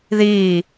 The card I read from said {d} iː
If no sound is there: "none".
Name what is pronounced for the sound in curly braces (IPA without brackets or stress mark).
ð